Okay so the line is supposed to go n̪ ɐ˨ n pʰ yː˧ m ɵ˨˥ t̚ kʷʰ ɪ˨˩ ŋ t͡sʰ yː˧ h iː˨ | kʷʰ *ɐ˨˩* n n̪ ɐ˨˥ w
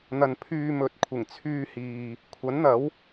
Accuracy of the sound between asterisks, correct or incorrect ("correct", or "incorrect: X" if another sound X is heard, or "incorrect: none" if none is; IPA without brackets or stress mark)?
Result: incorrect: ɐ˨˥